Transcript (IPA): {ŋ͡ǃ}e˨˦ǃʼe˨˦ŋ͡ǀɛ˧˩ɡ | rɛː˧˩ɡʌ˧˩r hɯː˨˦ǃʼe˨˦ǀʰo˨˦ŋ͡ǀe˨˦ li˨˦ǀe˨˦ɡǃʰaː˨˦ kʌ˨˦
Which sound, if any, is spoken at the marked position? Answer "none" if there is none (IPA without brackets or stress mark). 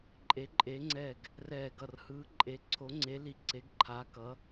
ǃʼ